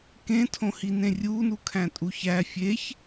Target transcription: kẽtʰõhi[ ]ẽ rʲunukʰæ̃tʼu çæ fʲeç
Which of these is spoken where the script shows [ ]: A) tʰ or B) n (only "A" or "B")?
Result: B